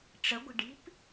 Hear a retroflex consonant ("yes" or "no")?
yes